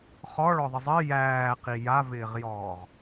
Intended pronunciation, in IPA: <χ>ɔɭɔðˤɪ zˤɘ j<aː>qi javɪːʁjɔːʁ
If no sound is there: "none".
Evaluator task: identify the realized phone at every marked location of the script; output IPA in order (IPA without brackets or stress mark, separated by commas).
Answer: χ, æː